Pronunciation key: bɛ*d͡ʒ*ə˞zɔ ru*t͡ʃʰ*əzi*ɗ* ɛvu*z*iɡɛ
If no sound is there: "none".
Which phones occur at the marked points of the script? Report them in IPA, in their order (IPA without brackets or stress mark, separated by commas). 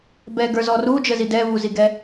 ɡ, d͡ʒ, d, z